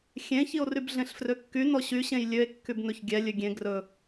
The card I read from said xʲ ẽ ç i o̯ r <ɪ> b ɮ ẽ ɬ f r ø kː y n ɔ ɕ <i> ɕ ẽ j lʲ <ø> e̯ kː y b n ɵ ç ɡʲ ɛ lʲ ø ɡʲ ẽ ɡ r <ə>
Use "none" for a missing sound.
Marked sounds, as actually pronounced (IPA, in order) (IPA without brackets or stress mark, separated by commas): y, y, ø, ɵ